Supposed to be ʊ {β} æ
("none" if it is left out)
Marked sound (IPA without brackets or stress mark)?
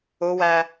w